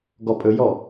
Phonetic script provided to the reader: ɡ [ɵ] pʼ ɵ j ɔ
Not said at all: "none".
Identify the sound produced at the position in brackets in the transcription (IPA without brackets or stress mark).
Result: ɔ